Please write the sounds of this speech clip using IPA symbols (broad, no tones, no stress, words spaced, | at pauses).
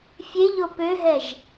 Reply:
fʲeʎo pøɦɛʒ